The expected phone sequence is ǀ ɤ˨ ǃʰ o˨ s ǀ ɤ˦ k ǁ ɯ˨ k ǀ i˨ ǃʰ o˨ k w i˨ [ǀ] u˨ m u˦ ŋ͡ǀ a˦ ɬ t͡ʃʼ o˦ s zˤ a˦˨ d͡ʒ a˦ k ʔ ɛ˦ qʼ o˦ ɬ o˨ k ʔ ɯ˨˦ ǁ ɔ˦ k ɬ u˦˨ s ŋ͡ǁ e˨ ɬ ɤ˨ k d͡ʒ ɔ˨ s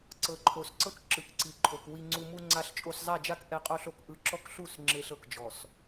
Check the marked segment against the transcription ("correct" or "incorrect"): incorrect